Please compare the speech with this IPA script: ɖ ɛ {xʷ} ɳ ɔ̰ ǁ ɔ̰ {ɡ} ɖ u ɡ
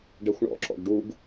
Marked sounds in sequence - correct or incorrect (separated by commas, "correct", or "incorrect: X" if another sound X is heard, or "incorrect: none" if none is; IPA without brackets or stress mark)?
correct, correct